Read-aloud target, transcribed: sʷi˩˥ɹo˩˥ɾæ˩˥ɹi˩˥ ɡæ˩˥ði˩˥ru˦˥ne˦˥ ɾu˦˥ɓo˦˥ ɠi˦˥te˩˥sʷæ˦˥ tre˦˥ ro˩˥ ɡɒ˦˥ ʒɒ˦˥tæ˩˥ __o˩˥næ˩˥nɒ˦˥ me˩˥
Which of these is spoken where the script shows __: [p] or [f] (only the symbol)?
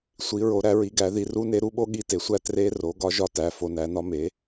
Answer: f